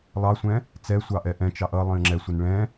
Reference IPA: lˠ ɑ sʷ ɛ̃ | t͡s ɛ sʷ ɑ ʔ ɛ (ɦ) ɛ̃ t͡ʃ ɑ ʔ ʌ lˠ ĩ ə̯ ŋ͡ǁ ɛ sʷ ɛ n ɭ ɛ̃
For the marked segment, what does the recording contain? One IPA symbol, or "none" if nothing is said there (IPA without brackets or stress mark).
ʔ